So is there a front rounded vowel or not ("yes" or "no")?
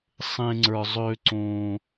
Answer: yes